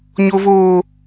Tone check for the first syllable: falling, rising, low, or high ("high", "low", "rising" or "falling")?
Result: high